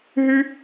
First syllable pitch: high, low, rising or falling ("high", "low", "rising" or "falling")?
high